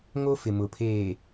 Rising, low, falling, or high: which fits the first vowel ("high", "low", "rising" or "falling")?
high